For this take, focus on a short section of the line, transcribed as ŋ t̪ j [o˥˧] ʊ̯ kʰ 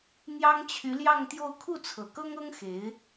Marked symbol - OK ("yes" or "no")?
yes